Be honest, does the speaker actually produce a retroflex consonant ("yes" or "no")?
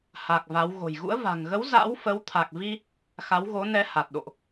no